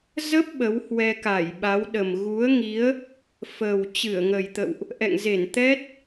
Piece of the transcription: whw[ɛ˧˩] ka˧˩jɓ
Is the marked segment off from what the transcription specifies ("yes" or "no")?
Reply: yes